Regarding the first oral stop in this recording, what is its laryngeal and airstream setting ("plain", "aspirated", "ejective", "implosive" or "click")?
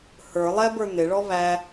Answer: plain